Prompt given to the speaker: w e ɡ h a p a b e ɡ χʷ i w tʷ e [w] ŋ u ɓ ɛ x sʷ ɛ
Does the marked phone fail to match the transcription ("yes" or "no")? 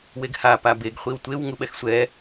no